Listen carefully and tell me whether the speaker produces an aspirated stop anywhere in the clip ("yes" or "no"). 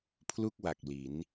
yes